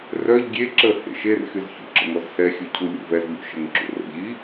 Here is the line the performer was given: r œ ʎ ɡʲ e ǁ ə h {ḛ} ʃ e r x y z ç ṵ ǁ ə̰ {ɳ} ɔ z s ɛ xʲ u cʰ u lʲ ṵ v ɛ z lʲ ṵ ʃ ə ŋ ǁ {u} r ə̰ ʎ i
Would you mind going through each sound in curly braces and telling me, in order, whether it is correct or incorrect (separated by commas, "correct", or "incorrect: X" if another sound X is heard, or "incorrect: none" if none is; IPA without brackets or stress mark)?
correct, incorrect: ŋ, incorrect: ṵ